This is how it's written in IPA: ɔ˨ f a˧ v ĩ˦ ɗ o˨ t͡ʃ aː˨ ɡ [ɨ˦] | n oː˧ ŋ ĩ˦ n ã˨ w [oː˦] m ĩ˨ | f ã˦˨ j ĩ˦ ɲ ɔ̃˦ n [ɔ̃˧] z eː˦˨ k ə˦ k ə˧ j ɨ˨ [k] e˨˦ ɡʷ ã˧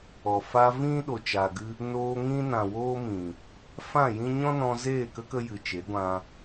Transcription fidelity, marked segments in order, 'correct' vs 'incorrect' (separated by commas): correct, correct, correct, incorrect